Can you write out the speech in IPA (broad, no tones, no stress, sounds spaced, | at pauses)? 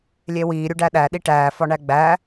lʲ e w iː ɾʲ u ɖ æ ɗ æ ɗ i ʈ æː f ɒ ɳ æ ɡ͡b æ